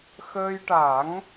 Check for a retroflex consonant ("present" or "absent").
present